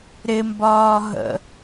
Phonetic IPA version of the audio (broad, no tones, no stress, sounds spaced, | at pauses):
ɾ ɪ m b ɒː ɦ ə̰